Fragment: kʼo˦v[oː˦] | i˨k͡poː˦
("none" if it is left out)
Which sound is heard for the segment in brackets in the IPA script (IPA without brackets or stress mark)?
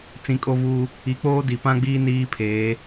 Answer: uː˦